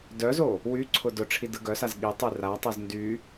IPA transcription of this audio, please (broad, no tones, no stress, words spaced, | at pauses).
dœzo | wyǀʰʊ dʊʈ͡ʂʰi dɯɡœsaz ɠitˤy ratˤœz ndy